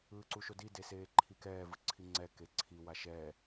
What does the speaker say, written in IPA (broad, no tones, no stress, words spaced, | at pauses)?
ɯːǀuʃodi deseːǃʰikɛː vɯǀʰiŋ͡ǀɛ keǀʰi waʃɛː